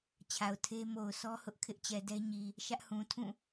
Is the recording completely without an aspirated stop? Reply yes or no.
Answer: no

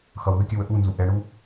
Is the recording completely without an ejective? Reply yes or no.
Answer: yes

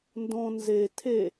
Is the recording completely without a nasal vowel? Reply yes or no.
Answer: no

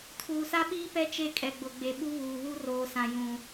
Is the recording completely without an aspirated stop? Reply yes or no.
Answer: no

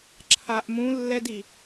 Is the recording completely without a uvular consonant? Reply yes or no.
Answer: yes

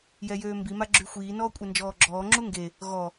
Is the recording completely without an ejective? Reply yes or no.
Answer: no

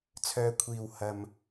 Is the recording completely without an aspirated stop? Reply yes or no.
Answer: no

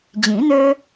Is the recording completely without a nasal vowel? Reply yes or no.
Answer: no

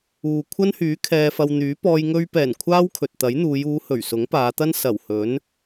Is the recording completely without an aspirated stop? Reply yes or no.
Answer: no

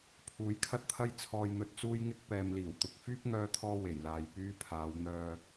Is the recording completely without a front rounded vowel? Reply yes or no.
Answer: no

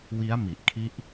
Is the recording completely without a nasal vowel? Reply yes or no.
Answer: yes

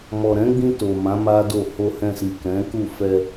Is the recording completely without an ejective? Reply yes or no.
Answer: yes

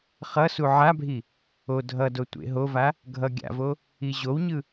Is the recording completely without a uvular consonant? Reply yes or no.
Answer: no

